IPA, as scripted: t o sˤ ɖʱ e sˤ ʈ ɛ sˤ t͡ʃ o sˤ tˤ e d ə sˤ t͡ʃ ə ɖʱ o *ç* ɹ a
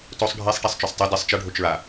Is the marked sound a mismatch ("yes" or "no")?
yes